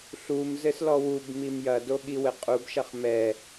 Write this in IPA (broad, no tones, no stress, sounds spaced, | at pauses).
ɬ u m z ɘ s l ɔ w u b m i m j ɐ d o ɠ i w ɘ qʼ u b ʃ ɐ χ m ɛ